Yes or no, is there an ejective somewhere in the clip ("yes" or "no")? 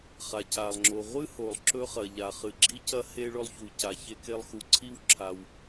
no